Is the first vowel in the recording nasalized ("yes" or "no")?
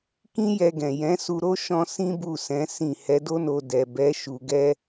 yes